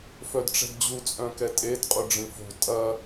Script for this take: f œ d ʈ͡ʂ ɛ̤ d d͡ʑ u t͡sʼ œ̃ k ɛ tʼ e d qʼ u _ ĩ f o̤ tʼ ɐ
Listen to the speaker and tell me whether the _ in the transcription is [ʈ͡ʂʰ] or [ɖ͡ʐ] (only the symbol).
ɖ͡ʐ